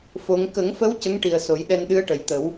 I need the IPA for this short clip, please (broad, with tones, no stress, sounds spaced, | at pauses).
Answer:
f o˧˥ ŋ k ə˨˩˦ ŋ f ə˧˥ w c ə˧˥ ŋ ʈ i˨˩ ə̯ s o˨˩˦ j ɗ ɛ˧ n ɗ ɨ˧˥ ə̯ ʈ ə˨˩ j t̪ ə˨˩˦ w